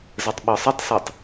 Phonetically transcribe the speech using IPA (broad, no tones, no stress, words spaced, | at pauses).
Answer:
zɛtˤɓɒsˤʌtˤsɜtˤ